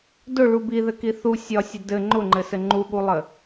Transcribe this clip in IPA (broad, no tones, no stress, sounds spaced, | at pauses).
d ʊ ɭ u b i ð ɘ k i θ u sʲ ɒ sʲ ɘ d ɘ ŋ͡ǃ ʊ ŋ͡ǃ ɘ s ɘ ŋ͡ǃ u ɠ u lˠ ɘ